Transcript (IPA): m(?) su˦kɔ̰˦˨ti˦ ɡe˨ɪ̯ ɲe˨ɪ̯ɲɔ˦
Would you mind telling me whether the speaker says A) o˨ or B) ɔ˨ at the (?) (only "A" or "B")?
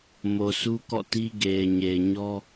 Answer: A